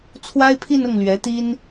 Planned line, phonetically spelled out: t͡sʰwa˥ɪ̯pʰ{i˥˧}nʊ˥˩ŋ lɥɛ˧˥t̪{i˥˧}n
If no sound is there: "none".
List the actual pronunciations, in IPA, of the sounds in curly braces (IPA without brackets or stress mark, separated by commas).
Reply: i˥˧, i˥